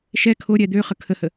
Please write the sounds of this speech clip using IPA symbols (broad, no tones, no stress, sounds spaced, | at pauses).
ʃ ɛ kʰ o ɾʲ ɛ d̪ ø χ ə kʰ ə h ə